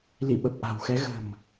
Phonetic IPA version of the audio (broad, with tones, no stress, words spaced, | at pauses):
lḭ˧˨ɓə˨˩p̚ʔa̤˨˩wxɛ˨˦ ɣə̤˨˩m